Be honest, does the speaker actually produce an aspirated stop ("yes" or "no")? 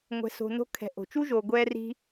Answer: yes